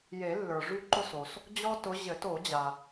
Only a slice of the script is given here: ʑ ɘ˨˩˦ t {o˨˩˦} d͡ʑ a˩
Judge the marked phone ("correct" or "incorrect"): correct